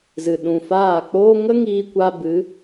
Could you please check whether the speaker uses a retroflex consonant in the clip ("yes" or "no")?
no